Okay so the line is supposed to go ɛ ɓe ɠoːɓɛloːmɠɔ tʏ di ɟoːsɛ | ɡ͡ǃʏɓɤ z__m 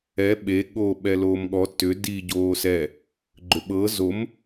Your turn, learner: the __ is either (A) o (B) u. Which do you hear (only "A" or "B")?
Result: A